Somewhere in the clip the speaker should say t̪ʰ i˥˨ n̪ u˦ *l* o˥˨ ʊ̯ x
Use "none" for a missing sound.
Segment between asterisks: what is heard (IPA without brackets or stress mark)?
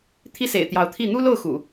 l